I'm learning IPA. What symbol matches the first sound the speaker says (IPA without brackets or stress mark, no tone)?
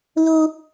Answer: l